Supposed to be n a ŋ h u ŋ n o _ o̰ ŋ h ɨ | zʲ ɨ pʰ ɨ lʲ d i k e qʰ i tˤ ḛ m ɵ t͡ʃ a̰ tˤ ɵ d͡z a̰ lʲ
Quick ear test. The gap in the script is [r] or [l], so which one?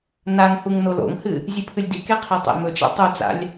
l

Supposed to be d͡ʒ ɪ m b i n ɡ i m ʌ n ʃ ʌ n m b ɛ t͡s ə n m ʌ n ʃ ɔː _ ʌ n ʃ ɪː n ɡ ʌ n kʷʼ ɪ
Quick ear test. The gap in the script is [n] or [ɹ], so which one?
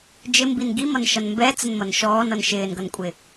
n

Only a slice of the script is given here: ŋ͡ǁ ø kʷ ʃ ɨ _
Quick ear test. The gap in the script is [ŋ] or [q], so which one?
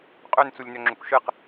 q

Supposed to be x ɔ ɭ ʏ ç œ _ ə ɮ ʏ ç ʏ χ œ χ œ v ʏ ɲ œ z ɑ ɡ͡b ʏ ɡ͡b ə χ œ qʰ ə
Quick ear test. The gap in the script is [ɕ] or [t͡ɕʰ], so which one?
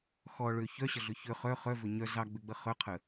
ɕ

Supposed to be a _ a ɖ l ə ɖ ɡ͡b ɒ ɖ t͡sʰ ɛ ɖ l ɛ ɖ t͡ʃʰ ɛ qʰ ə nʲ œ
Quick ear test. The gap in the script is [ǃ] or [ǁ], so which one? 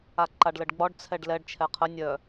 ǃ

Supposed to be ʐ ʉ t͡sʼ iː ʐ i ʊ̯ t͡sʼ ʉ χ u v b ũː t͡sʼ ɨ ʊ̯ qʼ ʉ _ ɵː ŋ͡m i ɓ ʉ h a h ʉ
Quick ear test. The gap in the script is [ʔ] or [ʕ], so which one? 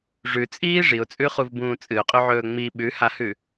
ʕ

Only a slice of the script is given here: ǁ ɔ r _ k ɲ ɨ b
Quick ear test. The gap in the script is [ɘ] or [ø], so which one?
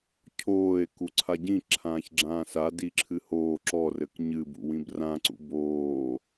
ɘ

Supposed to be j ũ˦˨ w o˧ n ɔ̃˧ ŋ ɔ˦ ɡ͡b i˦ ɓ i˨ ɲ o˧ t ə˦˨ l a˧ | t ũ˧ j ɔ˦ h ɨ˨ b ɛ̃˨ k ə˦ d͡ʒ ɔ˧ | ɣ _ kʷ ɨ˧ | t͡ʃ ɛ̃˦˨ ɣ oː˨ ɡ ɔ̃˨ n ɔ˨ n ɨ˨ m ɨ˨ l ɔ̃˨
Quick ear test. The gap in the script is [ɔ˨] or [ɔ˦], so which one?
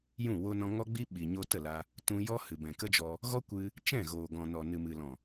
ɔ˦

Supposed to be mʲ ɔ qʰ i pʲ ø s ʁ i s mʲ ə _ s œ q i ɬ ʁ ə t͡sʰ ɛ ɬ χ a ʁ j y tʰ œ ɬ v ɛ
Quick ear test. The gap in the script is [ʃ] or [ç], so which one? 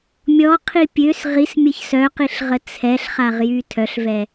ç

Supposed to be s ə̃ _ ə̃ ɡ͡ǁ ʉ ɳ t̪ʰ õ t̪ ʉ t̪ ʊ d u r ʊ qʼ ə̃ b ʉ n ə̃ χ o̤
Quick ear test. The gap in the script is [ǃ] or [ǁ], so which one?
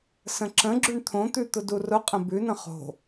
ǁ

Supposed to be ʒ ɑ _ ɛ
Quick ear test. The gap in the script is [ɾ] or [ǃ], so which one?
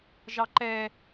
ǃ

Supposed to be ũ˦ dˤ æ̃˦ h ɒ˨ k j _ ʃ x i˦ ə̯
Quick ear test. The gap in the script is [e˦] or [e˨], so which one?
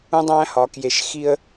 e˨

